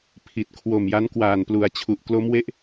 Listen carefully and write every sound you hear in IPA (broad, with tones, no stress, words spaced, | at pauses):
pʰi˨˩t̚ kʰwo˨˩mja˦˥n kwaː˨˩nplu˩˦a̯t͡ɕʰu˨˩ʔ klo˦˥mwe˦˥ʔ